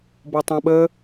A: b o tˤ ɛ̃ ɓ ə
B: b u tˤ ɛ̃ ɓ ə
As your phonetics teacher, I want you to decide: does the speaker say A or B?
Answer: A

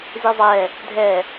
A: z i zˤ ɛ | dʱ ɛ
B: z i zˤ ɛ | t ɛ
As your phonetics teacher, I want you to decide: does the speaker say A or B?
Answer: A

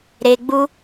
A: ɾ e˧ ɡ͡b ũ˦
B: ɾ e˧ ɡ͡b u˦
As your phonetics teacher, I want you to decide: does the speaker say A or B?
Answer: B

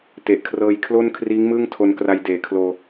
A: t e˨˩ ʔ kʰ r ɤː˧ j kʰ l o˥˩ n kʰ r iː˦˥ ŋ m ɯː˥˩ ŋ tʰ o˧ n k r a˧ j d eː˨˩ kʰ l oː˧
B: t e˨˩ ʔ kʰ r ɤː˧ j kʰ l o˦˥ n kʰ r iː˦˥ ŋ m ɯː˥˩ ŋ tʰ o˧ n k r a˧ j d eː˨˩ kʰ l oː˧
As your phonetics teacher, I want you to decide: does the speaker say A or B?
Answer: A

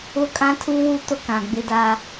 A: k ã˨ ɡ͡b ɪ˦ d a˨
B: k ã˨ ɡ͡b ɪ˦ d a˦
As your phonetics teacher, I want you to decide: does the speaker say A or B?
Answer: B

